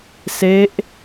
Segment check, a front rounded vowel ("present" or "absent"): absent